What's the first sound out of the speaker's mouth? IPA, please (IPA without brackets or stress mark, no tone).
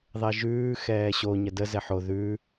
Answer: ðˤ